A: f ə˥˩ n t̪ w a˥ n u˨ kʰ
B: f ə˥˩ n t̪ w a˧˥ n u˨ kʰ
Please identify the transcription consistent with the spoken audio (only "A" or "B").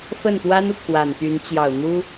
A